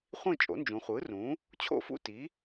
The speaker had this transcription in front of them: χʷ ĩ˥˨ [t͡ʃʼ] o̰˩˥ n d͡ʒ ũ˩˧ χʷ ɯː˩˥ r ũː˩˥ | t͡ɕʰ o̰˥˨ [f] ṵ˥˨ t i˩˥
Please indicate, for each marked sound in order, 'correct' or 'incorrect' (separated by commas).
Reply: correct, correct